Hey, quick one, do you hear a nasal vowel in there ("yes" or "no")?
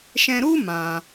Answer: yes